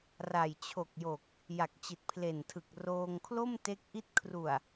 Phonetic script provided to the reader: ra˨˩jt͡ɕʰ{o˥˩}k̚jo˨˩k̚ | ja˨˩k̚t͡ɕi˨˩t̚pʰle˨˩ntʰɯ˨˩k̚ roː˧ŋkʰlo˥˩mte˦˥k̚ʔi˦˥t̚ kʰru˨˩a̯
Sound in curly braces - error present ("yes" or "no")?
yes